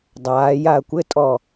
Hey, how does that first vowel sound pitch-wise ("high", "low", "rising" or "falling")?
rising